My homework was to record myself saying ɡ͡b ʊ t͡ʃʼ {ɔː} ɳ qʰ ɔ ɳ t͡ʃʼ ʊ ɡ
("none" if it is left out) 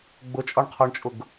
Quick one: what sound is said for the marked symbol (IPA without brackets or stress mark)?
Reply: ɔ